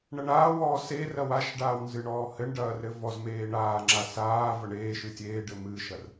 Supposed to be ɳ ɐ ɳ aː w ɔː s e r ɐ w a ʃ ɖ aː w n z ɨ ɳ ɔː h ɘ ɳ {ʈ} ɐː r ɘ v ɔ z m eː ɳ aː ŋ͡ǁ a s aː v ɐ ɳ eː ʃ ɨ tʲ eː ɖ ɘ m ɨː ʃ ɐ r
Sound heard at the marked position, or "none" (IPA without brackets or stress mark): ɖ